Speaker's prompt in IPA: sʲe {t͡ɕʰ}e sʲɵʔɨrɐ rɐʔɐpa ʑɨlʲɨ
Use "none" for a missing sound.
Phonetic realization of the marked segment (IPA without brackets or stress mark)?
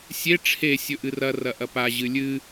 ʈ͡ʂʰ